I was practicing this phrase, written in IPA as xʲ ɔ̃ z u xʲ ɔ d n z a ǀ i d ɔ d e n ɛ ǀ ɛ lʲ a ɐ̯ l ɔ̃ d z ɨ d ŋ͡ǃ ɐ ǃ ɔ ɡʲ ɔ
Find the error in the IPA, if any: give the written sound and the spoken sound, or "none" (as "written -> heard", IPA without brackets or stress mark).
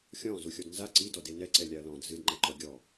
none